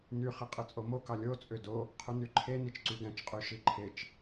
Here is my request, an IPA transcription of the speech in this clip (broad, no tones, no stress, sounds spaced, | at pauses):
n y χ i qʼ ɯ t͡sʼ o m o k ɑ lʲ o t͡sʼ ø d o | qʰ u n y ǃʰ e n i t͡ʃ ǀ y ɡ æ̃ t͡ʃ qʼ y ʃ i ǃʰ e t͡ʃ